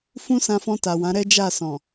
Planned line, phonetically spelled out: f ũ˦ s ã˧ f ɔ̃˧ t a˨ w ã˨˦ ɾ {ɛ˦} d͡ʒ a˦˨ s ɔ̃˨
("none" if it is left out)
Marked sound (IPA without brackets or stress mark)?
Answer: ɛ˦